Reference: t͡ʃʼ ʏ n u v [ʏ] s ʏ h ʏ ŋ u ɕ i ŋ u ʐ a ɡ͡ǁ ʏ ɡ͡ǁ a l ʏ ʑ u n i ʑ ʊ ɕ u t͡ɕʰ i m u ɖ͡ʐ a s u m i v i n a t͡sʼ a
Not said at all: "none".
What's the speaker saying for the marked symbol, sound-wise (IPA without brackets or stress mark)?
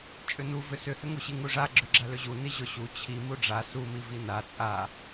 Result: ʏ